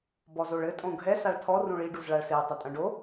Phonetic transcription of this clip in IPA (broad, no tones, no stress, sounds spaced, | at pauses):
b ɔ z o ɭ ɘ tʼ õ ɡʱ ɛ s a ɭ tʰ ɔ r ũ ɭ i ɖ u z ɭ a ɭ s e tˤ ɐ tʼ ɐ̃ ɖ o